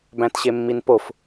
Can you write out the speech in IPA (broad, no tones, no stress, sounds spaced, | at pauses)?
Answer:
b æ̃ t ɕ e mː i n p o f